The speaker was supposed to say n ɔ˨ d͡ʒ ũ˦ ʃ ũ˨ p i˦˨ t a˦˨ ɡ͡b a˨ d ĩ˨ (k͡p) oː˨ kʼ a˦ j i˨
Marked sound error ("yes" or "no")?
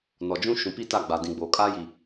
yes